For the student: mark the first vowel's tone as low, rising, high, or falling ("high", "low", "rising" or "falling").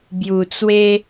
low